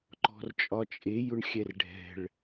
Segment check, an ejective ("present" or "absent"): present